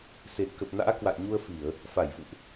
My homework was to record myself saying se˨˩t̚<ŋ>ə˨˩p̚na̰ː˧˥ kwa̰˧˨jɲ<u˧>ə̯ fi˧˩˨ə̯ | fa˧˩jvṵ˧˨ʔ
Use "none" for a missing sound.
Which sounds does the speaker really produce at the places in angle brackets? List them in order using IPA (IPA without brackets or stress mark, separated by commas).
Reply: k, u˧